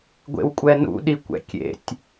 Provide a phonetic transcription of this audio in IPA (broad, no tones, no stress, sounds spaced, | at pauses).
ɡʷ ḛ w kʷʼ ɛ n ṵ ɗ i kʷ ɛ̰ kʲ ḛ tʲ